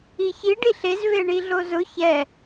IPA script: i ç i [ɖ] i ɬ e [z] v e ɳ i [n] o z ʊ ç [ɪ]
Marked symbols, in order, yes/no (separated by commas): yes, yes, no, no